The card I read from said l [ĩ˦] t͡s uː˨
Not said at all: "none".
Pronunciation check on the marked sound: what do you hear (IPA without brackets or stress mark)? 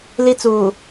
i˦